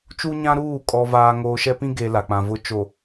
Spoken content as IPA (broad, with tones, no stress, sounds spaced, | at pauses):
t͡ʃ u˦ ɲ ã˦ ɾ uː˦˨ kʼ ɔ˦ v aː˦ ŋ oː˦ ʃ ɛ˦ p ĩ˦ ɡ e˨ l a˨ k͡p ã˨ v ʊ˨˦ t͡ʃ o˨